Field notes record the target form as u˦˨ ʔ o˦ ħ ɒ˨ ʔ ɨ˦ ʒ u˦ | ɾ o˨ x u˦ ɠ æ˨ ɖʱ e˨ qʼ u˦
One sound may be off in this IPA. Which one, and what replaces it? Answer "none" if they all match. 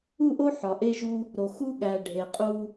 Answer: ɨ˦ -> e˦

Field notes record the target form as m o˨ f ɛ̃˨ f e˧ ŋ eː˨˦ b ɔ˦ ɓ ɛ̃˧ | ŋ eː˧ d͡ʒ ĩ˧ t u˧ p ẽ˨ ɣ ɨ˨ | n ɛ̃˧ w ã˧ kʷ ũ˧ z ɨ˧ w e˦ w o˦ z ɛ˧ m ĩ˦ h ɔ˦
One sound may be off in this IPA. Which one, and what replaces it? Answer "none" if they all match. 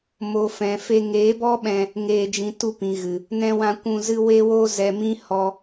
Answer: ẽ˨ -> ĩ˨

